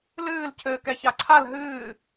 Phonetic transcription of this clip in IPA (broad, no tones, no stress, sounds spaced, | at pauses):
l ɨː l cʰ ɘː k ɛ ç a ǀʰ a l ɦ ɨː